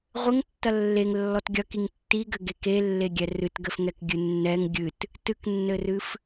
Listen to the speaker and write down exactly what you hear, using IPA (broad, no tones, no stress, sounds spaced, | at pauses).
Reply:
ʁʷ ɘ ŋ tː ɐ lː e ŋ lː ɔ t ɡʲ ɐ k i ŋ tː i ɡ ɘ ɡ e k e lː e ɡʲ ɛ r ɨ t ɡ ɘ f ŋ ɛ k ɡʲ ɨ nː ɛ ŋ ɡʲ ɨ t | t ɨ k nː ɘ r ɨ f